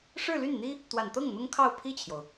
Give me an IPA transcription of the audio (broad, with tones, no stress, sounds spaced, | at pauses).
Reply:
ʂ ɻ̩˥˧ l y˥˩ n n̪ i˥ | t̪ w a˨˩ n t̪ ɤ˥˩ ŋ n̪ ʊ˥ ŋ kʰ ɑ˥˧ ʊ̯ pʰ i˥˩ t͡ɕʰ j o˩ ʊ̯